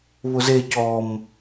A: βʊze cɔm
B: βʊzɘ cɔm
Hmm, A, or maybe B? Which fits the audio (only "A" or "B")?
A